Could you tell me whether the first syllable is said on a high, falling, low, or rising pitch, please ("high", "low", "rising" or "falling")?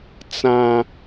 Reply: low